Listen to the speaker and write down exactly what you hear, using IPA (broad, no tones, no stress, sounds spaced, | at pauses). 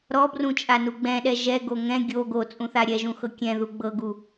ɾ ɔ b r ũ t͡ʃʼ a n u ɡ͡b ɛ̃ ɗ ɛ ʒ ɛ ɡ o ŋ ɛ̃ ɡʲ o ɡ o t͡sʼ ũ θ a ɾʲ ɛ ʒ ũ x ɤ kʲ ɛ̃ ð u ɡ͡b ɤ ɡ u